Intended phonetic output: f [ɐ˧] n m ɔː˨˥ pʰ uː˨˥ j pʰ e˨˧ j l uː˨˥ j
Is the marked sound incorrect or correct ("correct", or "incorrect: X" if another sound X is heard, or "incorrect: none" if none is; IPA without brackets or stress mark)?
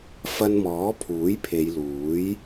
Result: correct